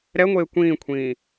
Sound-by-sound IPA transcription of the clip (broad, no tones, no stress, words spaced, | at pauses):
ɾɛŋʷeː kʷĩːkʷʰĩː